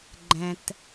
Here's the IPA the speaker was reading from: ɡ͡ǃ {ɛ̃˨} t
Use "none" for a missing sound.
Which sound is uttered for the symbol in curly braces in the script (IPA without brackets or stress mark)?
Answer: ɛ̃˨